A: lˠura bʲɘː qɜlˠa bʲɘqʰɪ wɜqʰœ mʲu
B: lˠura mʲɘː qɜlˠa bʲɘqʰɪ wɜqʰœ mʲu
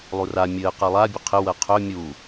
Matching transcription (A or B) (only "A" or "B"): B